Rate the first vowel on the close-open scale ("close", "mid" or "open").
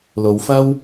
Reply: mid